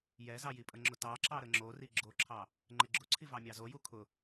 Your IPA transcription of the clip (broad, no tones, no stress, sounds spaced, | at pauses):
j ɛ z ɑ j i pʼ ə ŋ͡ǁ ʊ t ɑ ǁ ɑ ɾ ə ŋ͡ǁ o r i ɡ͡ǁ o ǁʰ ɑ | ŋ͡ǃ ɪ ɡ͡ǁ ʊ ǀʰ i v ɑ mʲ ɑ z o j u kʰ ʊ